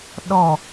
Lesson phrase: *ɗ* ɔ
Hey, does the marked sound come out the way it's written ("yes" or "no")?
yes